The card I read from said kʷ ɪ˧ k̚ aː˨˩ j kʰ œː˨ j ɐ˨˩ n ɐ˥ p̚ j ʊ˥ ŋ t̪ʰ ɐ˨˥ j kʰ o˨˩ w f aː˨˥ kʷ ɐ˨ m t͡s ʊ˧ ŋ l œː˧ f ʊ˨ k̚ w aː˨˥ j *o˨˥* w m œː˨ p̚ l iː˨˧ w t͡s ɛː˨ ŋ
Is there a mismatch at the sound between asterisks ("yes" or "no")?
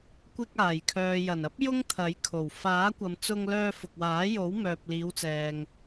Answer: no